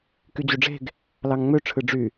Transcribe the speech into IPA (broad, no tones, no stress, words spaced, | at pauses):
kyd͡ʑuɖ͡ʐe̤ɡ | lɑŋŋ͡mø ʈ͡ʂʰɯɖ͡ʐy